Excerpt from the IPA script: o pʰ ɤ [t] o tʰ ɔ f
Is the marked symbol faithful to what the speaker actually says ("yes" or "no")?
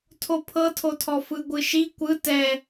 no